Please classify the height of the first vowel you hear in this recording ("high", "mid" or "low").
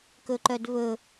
mid